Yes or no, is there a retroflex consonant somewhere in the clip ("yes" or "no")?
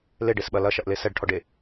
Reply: yes